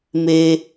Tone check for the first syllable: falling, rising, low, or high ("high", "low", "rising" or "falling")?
high